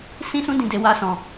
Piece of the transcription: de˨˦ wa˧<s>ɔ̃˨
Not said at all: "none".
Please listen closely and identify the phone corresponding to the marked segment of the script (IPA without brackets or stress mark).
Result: s